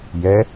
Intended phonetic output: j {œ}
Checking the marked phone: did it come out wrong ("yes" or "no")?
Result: yes